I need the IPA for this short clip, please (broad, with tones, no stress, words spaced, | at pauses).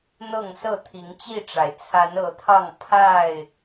n̪ɤ˥˨ŋsɤ˥˨ t̪ʰi˨˦ŋt͡ɕi˥˨ʈ͡ʂa˩ɪ̯ t͡sʰa˨˦nɤ˨˦t̪ʰɑ˥˨ŋ pʰa˥˨ɪ̯